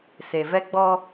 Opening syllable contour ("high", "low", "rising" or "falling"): low